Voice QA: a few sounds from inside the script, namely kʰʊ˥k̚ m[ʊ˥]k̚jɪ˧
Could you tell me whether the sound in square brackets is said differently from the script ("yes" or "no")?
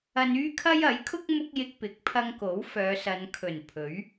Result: no